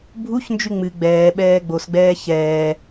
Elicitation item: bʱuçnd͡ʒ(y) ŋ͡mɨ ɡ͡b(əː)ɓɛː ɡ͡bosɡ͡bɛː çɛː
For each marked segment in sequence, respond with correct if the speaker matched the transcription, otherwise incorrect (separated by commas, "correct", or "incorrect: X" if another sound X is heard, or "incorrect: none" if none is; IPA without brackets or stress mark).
correct, incorrect: ɛː